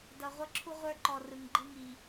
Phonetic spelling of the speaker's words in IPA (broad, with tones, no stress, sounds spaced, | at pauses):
d ʌ˨ ʁʷ ʌ˦ ǁʰ u˦ ʁʷ ə˞˦ ǃ ɔ˨ r ɯ˨ ŋ ɡ͡ǃ ɯ˦ ŋ i˨